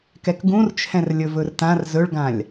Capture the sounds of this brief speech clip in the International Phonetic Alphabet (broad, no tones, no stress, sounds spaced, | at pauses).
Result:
k ɛ k ɡ ũ r t͡ʃʰ ɛ̃ r lʲ ɵ v ɵ r t ã r z ɵ ɭ ɡ ã lʲ